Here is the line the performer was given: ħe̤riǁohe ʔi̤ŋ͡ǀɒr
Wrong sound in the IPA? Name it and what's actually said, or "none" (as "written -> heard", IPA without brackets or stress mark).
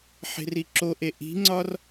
h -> ʔ